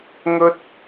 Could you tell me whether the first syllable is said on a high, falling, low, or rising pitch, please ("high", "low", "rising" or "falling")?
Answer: high